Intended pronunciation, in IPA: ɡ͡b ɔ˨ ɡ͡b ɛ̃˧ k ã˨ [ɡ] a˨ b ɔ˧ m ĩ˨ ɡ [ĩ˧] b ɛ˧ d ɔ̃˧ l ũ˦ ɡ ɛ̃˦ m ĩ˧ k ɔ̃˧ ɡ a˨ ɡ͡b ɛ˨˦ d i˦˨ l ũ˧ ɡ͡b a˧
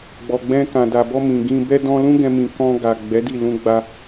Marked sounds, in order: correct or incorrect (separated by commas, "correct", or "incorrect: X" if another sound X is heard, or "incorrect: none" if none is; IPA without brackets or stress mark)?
incorrect: d, correct